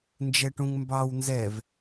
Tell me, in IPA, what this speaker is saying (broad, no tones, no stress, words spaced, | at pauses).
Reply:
nd͡ʒɛʈũŋmbɑw nzɛv